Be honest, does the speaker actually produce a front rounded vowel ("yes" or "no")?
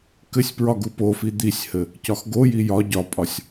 no